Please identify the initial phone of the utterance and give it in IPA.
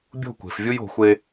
bʲ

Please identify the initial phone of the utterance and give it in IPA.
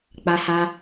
k͡p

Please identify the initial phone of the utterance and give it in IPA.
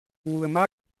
w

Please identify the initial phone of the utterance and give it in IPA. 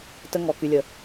t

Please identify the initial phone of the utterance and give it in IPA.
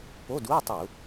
p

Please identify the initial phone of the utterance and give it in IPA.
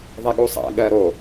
ðˤ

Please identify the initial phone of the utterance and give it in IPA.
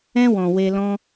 ɛ̃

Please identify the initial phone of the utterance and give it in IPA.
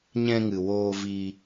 ɲ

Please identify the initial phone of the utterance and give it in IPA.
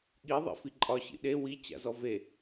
ɠ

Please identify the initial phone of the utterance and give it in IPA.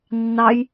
nː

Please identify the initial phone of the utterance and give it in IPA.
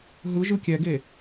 ɦ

